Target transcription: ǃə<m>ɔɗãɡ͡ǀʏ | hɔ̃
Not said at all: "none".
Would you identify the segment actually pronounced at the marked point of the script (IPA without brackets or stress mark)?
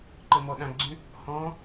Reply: m